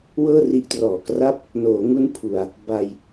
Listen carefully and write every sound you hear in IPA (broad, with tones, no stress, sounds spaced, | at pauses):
w ɤː˥˩ r i˦˥ ʔ t r ɔː˨˩ k r a˥˩ p̚ | n oː˩˦ ŋ u˦˥ n pʰ u˧ a̯ | b a˧ j